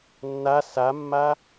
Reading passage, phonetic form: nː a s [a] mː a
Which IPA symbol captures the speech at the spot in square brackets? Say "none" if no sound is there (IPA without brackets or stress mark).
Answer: a